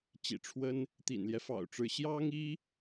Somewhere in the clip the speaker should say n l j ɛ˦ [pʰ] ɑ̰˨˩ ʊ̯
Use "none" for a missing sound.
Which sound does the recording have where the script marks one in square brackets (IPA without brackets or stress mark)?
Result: f